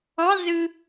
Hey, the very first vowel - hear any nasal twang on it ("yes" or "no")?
yes